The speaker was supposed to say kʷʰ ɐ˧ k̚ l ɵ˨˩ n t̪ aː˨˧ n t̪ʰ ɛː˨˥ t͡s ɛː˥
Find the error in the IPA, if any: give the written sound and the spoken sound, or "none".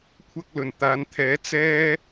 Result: none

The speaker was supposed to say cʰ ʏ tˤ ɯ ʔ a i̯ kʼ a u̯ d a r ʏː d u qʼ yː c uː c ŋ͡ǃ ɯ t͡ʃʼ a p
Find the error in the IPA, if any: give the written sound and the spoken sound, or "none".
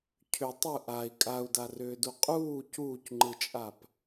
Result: yː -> uː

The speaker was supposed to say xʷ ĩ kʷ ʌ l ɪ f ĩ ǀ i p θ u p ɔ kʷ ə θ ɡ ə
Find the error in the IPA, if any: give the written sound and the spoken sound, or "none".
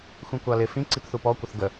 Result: ʌ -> ɑ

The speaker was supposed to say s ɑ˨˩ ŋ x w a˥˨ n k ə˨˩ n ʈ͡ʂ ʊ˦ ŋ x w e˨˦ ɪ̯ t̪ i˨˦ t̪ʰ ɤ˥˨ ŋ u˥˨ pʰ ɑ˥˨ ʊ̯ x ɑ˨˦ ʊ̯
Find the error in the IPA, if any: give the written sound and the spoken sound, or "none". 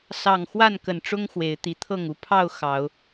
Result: none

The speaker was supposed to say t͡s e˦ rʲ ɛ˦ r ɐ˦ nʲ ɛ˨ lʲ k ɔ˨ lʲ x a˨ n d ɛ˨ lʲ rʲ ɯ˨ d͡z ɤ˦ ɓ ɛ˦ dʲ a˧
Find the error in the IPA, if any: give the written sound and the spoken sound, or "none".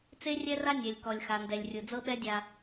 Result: ɐ˦ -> a˦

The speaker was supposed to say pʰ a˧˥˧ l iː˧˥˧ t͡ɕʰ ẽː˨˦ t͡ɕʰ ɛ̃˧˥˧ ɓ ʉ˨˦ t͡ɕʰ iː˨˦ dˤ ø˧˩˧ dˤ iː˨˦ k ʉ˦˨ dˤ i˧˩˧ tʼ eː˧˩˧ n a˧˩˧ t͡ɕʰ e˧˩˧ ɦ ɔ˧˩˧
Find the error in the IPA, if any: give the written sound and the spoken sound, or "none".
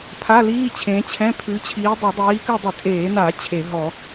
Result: ɓ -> pʰ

